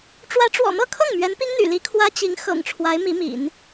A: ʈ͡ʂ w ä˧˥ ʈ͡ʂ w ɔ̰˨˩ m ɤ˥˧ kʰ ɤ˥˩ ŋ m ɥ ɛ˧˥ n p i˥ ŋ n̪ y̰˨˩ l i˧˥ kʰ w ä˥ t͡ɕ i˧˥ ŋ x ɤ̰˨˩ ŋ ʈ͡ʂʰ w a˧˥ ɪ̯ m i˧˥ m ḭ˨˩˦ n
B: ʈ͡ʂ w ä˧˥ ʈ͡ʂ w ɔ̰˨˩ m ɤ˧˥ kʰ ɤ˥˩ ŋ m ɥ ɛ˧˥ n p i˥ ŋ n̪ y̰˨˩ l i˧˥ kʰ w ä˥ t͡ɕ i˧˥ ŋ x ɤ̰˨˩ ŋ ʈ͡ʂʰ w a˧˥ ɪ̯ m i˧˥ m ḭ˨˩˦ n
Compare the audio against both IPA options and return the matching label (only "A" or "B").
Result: A